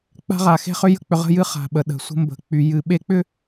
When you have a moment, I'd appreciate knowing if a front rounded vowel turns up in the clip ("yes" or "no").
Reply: yes